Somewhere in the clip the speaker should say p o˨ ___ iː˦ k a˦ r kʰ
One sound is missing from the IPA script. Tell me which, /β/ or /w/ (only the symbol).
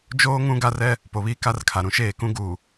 β